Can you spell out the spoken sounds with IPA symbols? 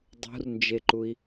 dˤ ṳ r n d͡ʒ e ǃ u i̯

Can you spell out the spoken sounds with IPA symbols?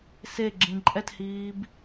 s e ɡ͡ǁ ĩ ǃʼ ɛ t h iː b

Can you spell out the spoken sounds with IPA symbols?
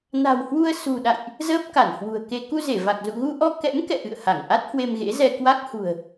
n a̤˨˩ w h w u˧ ə̯ s ṳ˨˩ ɗ a̰˧˨ j ʔ | z əː˦˥ p̚ k a˧˩ n h w ṳ˨˩ ə̯ k e˧ k u˧ z e˧˩ v a˨˩ k̚ z ṵ˧˨ ɣ u˧ ʔ ɔ˧ k ɛ̰˧˥ m k ɛ̰˧˨ ʔ ɨ̰˧˨ ə̯ h a˧˩ ŋ ʔ a˦˥ t̚ h w e˧ m ɣ ḛ˧˥ z ɛ˧ k w a˦˥ k̚ h ṳ˨˩ ə̯

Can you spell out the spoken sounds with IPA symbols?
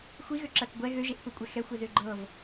xʷ i ɣ ø ǁ ɜ k ɡʷ ɛ ɣ ø ʒ e ʔ θ u kʷʼ ɛ x ɛ xʷ ɛ z ø ɡ͡ǃ ɤ v

